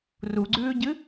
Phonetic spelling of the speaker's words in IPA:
r u ɡ͡ǀ ʉː ɟ ɨ

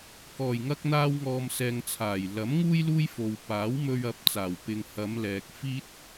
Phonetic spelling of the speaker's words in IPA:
k ɔː˨˩ j ŋ ɐ˧ k̚ n̪ aː˧ w ŋ ɔː˨ m s ɛː˨ ŋ t͡sʰ aː˨˩ j l ɐ˨˥ m ŋ uː˥ j l uː˥ j f o˨ w p aː˨˥ w m ɵ˧ ɥ ɐ˨˥ p̚ t͡s aː˨˩ w p ɪ˨ ŋ h ɐ˨˧ m l ɛː˨ k̚ f iː˥ t̚

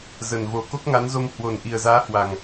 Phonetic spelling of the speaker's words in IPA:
z ə˨˩ n v o˨˩ k o˦˥ k̚ ŋ a˨˦ n z o˧ m h w o˨˩ n ʔ i˨˩ ə̯ z aː˨˦ h w a˨˩ ŋ

